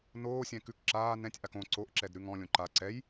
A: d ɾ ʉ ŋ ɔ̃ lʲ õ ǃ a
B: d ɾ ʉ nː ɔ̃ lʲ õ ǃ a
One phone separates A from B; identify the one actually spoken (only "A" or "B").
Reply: A